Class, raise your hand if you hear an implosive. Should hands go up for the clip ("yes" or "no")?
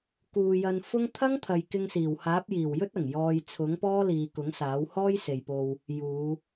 no